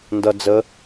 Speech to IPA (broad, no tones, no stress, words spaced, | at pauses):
ndʌ d͡zə